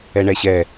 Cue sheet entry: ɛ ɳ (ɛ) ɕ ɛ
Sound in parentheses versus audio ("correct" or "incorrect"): correct